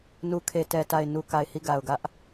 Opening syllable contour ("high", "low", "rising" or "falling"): low